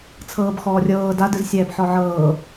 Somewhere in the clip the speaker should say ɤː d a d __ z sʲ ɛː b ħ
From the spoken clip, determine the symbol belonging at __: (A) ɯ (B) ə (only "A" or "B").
A